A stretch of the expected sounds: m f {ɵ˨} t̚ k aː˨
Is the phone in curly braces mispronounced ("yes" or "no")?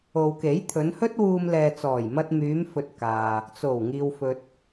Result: no